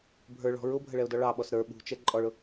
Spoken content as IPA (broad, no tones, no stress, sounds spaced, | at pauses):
bʱ ə˞ ɭ ɔ̤ ɹ ʊ bʱ ə ɭ ɛ ʊ̯ d ɔ ɭ ɑ ɓ ɔ s ɾ ə˞ ɓ ṳ t͡ʃ ɛ ǃʼ ɔ ɭ ʊ